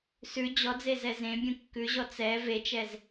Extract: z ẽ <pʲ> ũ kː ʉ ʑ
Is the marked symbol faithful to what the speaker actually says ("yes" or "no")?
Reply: no